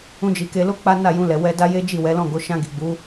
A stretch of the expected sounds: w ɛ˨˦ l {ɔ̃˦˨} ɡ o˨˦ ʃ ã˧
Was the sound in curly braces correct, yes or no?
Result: yes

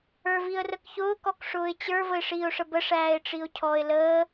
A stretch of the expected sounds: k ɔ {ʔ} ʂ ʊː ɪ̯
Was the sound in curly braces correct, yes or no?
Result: no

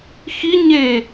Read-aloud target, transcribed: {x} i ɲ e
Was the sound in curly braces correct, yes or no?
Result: yes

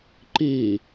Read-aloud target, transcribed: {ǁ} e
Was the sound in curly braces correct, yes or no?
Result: no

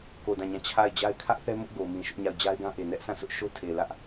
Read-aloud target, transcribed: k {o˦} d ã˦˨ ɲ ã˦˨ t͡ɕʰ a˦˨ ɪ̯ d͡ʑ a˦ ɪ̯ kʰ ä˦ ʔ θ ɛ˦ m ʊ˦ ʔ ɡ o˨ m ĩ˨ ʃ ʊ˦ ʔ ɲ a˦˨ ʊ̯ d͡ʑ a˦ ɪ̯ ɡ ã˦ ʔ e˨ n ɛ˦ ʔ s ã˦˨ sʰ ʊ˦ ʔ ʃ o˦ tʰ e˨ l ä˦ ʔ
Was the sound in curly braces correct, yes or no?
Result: no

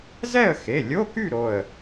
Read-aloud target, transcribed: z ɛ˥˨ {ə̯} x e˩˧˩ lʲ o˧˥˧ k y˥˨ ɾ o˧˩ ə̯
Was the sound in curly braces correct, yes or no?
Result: yes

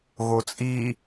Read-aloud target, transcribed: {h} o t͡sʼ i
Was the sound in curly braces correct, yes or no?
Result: no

